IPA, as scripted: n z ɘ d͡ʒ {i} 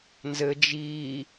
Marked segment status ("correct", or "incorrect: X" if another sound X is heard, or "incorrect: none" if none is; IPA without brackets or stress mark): correct